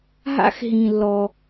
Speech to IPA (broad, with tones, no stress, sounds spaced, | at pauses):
ɦ a̰˧ x ɦ ĩ˩ lː ɔ˩